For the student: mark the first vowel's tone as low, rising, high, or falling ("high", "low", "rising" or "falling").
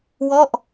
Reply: falling